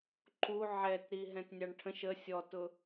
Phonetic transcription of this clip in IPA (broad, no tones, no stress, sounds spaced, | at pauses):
ǃ u ʕ ɛ t ɾ i ɦ ɛ̃ t nʲ ɑ ɳ ʈʰ ə̃ ʃ ə sʲ ɔ t ʊ